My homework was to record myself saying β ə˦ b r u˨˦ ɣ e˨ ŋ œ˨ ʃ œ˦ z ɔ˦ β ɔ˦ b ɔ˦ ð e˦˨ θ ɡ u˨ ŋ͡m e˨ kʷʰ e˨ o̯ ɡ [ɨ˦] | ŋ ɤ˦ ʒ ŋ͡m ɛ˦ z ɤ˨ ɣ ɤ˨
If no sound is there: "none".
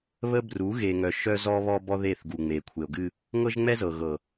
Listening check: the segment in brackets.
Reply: ɨ˦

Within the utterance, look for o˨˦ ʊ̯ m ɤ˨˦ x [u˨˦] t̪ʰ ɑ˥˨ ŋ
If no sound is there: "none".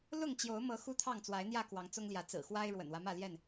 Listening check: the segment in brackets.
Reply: u˦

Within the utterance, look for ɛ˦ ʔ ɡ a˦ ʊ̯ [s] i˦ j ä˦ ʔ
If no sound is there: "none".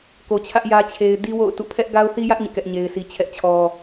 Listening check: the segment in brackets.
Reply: θ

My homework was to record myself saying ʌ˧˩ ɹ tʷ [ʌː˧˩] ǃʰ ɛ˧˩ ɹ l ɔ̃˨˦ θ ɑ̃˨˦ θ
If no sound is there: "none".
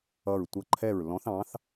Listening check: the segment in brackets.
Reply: ʌ˧˩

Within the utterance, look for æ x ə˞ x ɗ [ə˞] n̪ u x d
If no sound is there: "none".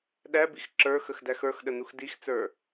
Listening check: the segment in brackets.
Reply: ə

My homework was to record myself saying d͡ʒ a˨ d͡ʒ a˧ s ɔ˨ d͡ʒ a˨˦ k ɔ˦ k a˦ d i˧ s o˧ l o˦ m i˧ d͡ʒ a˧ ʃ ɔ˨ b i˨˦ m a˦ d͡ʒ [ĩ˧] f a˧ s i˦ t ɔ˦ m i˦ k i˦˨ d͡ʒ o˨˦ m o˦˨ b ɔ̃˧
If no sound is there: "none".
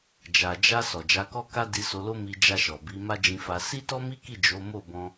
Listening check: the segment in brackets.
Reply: ĩ˧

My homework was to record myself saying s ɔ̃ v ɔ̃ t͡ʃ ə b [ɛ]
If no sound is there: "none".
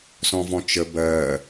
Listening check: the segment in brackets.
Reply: ɜ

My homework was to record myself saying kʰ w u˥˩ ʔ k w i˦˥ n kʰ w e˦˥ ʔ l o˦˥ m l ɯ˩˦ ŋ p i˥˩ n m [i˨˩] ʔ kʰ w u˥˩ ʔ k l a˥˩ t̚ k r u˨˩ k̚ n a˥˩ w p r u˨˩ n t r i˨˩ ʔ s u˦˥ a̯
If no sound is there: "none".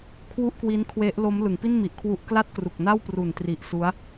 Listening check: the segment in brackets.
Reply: i˨˩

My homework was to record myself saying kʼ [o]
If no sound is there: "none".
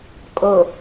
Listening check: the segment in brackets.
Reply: o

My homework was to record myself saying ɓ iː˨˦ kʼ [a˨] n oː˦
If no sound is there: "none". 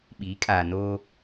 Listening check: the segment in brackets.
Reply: aː˨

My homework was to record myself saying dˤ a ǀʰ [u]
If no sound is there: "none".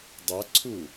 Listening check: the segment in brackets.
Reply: u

